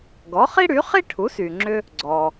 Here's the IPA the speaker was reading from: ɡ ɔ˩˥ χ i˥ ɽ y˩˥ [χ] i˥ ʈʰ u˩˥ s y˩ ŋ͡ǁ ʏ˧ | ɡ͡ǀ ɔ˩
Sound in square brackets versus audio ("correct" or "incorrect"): correct